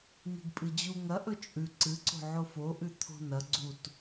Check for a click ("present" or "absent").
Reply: present